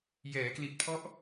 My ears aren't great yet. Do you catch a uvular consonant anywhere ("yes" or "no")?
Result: no